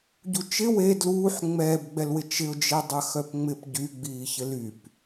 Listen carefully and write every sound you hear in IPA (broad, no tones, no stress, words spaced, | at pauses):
ɟut͡ʃɪ we dluːħ ŋ͡mɛːbɡ͡bɛlwɪ t͡ʃɪʊ̯d͡ʒe dˤɐxœpŋ͡mɪp ɟyɡ͡biːçɪ lyp